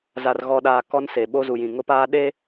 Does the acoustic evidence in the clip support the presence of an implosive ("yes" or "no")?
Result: yes